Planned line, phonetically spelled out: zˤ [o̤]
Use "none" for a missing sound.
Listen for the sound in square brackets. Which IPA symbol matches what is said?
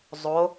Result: o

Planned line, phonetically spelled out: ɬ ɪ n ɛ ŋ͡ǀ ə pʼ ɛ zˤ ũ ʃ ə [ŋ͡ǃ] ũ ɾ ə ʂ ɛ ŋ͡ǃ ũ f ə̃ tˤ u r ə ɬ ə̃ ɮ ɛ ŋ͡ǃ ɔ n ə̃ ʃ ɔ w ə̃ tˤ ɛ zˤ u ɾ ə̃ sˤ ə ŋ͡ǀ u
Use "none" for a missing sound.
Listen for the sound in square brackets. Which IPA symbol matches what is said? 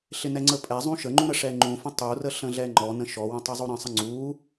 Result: ŋ͡ǃ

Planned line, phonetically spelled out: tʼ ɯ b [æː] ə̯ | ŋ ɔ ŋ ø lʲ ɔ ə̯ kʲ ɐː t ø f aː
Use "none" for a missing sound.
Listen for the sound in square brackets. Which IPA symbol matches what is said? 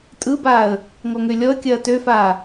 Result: aː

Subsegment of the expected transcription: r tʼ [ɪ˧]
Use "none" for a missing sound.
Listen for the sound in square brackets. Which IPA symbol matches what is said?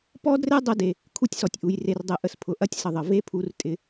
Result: ɪ˧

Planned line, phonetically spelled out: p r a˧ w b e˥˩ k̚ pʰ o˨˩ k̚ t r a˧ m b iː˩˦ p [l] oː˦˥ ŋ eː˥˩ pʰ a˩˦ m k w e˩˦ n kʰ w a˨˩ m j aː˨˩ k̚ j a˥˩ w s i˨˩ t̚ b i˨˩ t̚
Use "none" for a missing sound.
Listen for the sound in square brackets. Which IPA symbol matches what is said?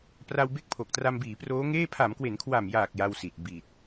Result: r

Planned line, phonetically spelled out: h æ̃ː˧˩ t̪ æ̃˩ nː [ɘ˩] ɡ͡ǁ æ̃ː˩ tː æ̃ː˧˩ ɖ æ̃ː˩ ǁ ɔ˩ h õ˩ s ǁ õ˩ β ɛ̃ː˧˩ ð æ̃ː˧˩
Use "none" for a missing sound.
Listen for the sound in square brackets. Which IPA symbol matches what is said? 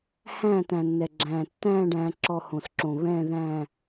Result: ɛ˩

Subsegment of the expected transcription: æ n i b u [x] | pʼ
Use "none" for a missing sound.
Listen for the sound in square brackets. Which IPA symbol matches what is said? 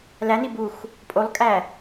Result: x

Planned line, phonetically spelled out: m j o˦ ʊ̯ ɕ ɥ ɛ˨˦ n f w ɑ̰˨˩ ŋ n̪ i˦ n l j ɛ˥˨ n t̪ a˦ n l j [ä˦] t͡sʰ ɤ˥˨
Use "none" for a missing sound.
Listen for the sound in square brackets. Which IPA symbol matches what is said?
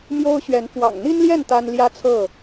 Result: ä˦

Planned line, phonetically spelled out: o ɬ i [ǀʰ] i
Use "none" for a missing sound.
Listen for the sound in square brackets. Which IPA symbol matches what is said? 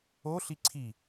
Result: ǀʰ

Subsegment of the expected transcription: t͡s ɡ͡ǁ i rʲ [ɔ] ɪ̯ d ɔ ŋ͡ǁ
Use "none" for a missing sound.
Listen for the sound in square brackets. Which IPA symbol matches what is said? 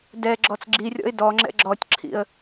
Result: ɔ̰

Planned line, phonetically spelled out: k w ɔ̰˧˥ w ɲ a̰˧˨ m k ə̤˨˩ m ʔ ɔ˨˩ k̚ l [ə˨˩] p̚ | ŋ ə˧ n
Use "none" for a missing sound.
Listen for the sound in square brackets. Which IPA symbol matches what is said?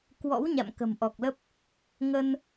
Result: ə˦˥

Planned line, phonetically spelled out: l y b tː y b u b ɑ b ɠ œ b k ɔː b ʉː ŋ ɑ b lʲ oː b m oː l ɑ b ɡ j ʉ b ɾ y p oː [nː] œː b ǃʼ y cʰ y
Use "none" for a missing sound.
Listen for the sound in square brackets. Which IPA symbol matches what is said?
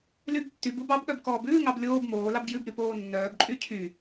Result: nː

